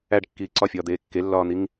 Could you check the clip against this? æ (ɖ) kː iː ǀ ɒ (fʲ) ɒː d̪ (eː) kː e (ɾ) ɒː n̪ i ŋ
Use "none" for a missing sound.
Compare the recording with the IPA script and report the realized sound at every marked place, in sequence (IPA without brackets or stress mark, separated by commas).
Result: ɖ, fʲ, eː, lː